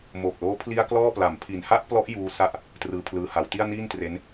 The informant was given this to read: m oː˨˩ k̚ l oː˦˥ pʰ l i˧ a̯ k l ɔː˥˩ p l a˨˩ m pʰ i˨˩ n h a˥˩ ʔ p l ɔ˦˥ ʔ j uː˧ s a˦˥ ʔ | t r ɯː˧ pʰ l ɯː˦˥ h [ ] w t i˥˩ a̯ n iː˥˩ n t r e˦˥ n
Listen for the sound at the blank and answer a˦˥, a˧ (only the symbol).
a˧